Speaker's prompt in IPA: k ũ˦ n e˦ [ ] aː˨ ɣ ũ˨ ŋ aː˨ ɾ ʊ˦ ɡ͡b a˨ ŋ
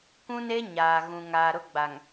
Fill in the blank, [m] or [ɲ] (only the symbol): ɲ